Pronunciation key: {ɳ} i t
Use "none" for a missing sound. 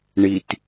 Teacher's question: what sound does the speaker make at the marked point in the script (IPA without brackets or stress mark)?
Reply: ɳ